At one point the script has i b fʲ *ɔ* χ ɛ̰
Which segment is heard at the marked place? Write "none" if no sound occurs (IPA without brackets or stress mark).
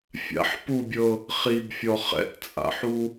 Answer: ɔ